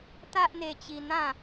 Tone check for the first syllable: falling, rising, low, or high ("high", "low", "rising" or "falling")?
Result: high